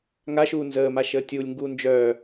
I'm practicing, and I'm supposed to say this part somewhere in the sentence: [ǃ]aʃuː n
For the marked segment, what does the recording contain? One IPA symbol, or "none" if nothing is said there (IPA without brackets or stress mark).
ŋ